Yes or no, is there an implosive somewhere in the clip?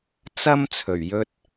no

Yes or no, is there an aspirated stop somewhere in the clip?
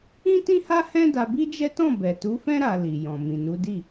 no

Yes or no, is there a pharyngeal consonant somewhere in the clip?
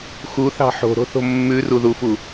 yes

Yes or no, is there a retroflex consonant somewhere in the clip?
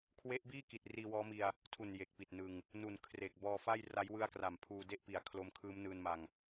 no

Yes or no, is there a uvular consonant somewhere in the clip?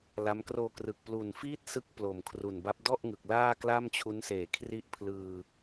no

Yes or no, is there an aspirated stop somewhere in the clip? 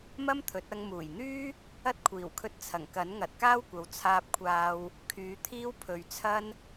yes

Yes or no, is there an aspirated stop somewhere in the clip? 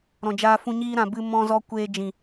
no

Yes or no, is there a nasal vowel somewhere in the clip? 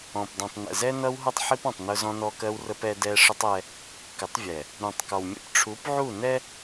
yes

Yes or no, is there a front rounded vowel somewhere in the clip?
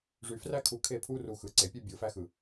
yes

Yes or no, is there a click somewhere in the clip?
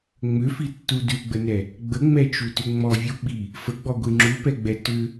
yes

